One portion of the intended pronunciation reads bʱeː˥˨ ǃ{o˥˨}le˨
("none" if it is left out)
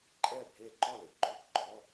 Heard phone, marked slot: ɔ˥˨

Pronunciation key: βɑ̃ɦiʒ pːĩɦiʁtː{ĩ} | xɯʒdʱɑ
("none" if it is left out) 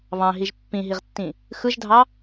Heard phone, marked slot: ĩ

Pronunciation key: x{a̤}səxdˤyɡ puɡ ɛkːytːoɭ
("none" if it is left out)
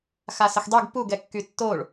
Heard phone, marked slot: a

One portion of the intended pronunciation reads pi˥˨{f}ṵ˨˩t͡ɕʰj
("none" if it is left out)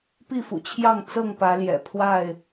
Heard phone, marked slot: f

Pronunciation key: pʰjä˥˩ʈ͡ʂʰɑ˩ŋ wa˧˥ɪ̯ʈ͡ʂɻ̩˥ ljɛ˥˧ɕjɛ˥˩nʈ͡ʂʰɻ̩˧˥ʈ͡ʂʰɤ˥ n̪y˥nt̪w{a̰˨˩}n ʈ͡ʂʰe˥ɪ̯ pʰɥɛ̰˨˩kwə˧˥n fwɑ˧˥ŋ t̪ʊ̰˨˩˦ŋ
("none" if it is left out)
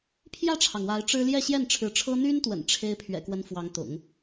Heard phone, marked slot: ə̰˨˩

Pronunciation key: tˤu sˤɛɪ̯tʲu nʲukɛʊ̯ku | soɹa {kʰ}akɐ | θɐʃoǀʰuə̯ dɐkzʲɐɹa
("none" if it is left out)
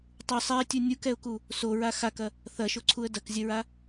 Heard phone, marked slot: x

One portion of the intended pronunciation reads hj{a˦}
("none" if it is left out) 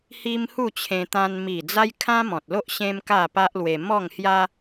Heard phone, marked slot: a˦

